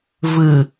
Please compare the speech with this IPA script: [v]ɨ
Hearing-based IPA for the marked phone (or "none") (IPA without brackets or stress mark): v